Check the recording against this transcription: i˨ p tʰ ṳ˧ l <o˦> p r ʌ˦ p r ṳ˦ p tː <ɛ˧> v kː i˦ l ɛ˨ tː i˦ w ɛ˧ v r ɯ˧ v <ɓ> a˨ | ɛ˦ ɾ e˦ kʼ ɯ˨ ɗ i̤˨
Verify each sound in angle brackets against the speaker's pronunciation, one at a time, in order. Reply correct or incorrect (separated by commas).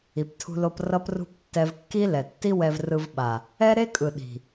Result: incorrect, correct, correct